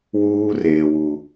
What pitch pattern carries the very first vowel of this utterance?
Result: high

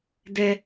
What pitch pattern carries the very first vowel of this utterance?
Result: low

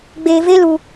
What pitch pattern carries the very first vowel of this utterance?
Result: low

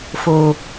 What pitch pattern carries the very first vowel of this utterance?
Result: low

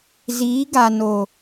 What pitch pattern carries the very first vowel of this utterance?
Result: rising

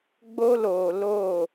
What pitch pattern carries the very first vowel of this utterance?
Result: high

